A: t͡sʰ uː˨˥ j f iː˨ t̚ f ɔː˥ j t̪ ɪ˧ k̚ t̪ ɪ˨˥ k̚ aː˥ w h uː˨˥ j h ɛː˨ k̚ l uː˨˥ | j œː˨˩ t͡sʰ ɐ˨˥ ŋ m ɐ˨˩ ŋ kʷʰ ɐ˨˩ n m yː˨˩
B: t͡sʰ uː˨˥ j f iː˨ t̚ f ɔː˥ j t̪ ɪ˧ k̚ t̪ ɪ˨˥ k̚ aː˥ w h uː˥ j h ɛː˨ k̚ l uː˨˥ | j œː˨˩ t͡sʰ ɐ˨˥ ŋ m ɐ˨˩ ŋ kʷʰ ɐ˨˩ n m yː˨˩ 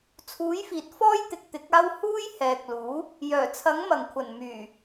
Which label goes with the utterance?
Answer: B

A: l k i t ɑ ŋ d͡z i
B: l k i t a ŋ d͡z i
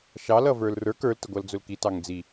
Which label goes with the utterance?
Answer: A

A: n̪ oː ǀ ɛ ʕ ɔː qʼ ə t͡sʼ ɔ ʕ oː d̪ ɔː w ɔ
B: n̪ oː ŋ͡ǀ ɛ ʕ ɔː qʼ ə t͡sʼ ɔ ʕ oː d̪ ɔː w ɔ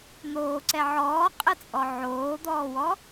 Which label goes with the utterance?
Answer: A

